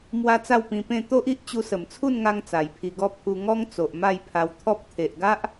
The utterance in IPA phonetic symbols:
m w a˦ t͡s a˥˧ w p ĩ˧ p ẽ˥˧ t̪ o˦ ʔ i˦ ʔ t͡ɕ u˧ s ə˨˩ m t͡sʰ u˥˧ n ŋ a˧ ŋ t͡s a˨˩ j pʰ i˧ ɡ ɔ˥˧ pʰ u˧ ŋ ɔ˦ ŋ t͡s o˨ ʔ m a˥˧ j pʰ a˧ w t̪ʰ ɔ˦ p̚ t̪ʰ e˨ ʔ ɡ a˦ ʔ

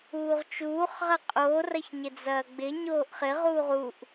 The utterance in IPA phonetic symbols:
uː ʁ t͡ʃ uː χ ʁ ɐ qʼ o r ɐ ç ɲ ɪ d͡z ɐː ɡ͡b ɪ ɲ oː ʔ χ ɪ ʁ uː ʁ u ʔ

